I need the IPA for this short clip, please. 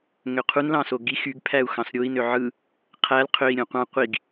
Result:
ŋ ø qʰ u n l ɑ̃ s o ɡ i x y ɡ pʰ æ u̯ x ɑ̃ s ɾʲ o i̯ n ø ʕ ɯ | qʰ æ l qʰ ø i̯ ɾʲ õ qʷ ɑ̃ qʷ i ɡ

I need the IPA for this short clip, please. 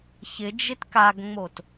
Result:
ç ɪ d͡ʒ ɪ t k a ɡ ŋ͡m o t

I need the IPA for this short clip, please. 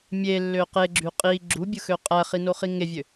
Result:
mʲ e lː ø q e ɡ͡ǁ y qʼ i ɡ͡ǁ u bʲ ɯ x ø qʼ æ χ i n o χ i ŋ e vʲ ø

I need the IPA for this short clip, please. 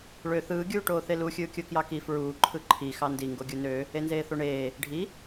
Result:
ɭ ø θ ɯː ɡʲ uː ʈ oː θ e l u xʲ ɯː kʲ o k j ɑ k i f ɹ uː ǃʰ ɯ ǃʰ i x ɑ n d i ŋ ɡ o ɡʲ u n ø | e n z eː θ o ɳ eː | ɖʱ i

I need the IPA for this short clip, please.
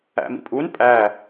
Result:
æ̰ m ḭ pʼ u n pʼ æ

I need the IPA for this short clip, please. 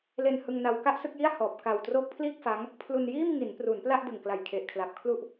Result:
l e˧ n h ɯ˧ ŋ n a˧ w k a˥˩ ʔ s ɯ˥˩ k̚ j i˥˩ a̯ h ɔː˨˩ p̚ k a˨˩ w t r oː˦˥ k̚ pʰ l iː˥˩ k̚ f a˦˥ ŋ | pʰ l u˧ n j iː˥˩ m ŋ i˩˦ n p r u˩˦ n p l a˥˩ ʔ d ɯ˨˩ ŋ k l a˨˩ j kʰ e˨˩ ʔ kʰ l a˨˩ p̚ kʰ l u˥˩ ʔ

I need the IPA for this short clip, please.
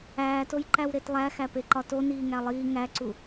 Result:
æː t o j ǃ æ w ɾ e t lˠ æ x æ p e ǃ ɒ t o n iː ŋ æ lˠ iː ŋ æ ǀ u

